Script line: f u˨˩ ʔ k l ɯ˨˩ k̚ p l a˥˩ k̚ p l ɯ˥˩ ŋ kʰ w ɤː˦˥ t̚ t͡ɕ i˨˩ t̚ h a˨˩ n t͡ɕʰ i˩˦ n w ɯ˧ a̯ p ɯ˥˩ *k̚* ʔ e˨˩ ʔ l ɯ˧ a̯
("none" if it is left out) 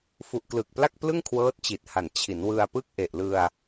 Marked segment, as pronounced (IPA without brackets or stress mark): k̚